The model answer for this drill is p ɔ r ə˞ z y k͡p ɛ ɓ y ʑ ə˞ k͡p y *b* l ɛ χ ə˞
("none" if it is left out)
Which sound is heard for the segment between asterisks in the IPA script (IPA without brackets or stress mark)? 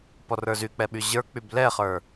b